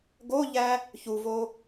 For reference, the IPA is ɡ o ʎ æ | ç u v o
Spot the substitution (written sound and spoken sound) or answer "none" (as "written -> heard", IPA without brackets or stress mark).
none